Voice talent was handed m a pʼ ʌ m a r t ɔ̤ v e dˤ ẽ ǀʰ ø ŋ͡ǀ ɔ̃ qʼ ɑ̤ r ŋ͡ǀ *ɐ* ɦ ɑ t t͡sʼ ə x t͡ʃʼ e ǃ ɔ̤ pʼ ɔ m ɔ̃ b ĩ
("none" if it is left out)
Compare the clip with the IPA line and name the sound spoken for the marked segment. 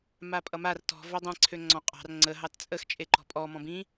ə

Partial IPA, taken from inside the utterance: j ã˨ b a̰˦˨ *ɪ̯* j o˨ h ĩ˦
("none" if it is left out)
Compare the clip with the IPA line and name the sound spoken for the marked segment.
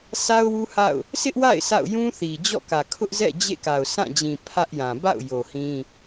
ʊ̯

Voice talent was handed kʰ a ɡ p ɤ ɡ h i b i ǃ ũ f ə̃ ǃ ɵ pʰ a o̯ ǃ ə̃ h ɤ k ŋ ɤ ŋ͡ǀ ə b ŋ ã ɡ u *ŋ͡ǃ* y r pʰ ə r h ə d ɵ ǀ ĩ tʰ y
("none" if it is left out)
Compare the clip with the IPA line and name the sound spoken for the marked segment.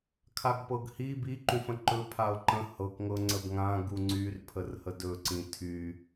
ŋ͡ǀ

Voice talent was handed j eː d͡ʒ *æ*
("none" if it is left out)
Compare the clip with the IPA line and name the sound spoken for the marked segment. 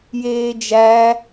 æ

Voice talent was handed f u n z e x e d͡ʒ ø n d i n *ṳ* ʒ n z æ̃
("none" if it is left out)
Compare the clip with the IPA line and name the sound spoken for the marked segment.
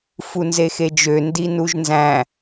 u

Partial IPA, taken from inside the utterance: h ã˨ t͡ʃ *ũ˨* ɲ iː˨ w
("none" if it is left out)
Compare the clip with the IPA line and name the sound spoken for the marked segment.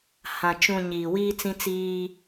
ũ˨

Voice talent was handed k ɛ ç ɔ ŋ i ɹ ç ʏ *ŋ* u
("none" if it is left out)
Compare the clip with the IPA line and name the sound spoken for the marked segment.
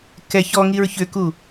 k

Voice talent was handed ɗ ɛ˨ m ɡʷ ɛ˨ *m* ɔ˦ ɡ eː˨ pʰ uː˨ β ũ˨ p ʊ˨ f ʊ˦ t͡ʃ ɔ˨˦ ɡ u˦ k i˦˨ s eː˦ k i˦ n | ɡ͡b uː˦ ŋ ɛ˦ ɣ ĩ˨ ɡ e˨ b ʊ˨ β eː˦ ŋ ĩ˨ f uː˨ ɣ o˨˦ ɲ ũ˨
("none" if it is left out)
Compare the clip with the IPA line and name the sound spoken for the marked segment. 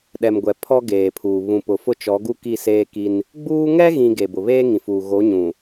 pʰ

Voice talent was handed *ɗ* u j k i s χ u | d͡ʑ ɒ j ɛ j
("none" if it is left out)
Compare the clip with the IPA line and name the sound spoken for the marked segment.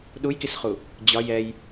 ɗ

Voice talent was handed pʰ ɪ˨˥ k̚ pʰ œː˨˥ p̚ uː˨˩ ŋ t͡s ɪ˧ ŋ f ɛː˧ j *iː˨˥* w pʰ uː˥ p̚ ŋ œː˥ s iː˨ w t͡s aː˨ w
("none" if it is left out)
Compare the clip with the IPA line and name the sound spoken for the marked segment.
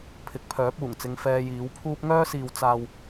iː˨˥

